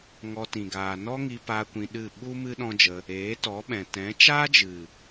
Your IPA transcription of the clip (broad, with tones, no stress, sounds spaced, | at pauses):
ŋ ɔ˧ t ĩ˨ ɡ aː˨ n ɔ˦ ŋ i˧ p aː˧ kʷ ĩ˧ ɗ ɨ˦˨ ɓ u˦ m ɨ˦ ɗ ɔ̃˦ d͡ʒ ə˧ | eː˨˦ t ɔ˨˦ ɓ ɛ̃˨ t ɛ̃˨˦ t͡ʃ aː˦ d͡ʒ ɨ˨